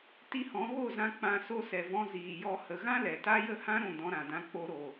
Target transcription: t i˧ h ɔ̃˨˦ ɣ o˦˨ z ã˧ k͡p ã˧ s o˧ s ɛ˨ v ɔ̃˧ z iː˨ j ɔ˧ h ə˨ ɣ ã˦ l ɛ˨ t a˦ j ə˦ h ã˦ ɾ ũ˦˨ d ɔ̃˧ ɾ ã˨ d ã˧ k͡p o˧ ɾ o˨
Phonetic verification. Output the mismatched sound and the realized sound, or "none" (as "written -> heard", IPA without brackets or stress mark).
none